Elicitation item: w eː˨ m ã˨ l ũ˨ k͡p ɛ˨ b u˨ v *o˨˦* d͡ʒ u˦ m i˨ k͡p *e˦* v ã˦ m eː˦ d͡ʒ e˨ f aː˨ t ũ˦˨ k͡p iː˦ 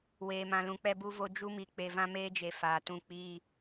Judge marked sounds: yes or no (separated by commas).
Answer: no, no